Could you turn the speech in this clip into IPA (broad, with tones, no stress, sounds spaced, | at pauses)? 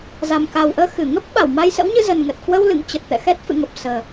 z a˨˩ m k a˨˩ w ʔ əː˧ x ɨ˧˩ ŋ ə˦˥ p̚ ɓ a˧˩ w m a˧ j s ə̰˧˥ w ɲ ɨ˧ z ə˨˩ n ŋ ə˨˩ t̚ k w ə˧ w l ɨ̰˧˨ ŋ t͡ɕ ə˨˩ t̚ t̪ ɛ̰˧˨ x ɛ˦˥ t̚ f ɨ̰˧˨ ŋ ə˨˩ p̚ s əː˨˩